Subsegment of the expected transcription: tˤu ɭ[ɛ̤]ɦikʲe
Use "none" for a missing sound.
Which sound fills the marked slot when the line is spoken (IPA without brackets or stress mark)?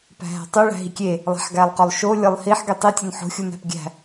æ̤